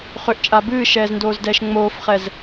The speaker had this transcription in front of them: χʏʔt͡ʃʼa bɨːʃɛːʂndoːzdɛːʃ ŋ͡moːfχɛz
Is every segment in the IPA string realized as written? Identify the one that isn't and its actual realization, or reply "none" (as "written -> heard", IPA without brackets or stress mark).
ʂ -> z